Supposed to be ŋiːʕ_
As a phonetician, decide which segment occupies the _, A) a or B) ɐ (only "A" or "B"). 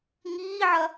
B